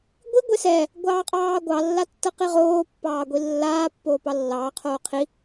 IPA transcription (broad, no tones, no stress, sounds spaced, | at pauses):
ɡʷ i ɡʷ e s ɛ | ɡʷ ɑː qʼ ɑː ɡʷ ɑ lː a tː ɤ q i ʁ oː pː ɑː ɡʷ i lː aː pː oː p ɑ lː ɑː qʰ oː qʰ i